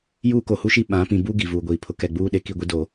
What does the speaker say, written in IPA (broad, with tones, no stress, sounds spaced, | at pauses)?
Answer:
j uː˦ k o˨ h u˦ ʃ i˦ ɓ ã˨˦ p ĩ˨ b u˦ ɡ i˨ v uː˨ ɡʷ iː˨ pʰ ʊ˦ k ɛ˨ ɡ͡b uː˦ ɗ e˨ k i˦˨ ɡʷ i˦ d o˨